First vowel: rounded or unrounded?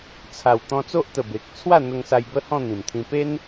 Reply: unrounded